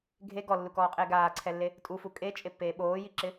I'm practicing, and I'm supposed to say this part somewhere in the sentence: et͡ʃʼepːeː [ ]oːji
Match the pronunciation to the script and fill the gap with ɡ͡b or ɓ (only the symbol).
ɓ